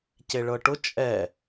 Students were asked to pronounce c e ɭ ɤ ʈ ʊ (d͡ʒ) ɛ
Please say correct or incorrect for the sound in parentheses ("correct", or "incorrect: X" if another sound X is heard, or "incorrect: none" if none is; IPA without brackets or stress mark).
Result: incorrect: t͡ʃʼ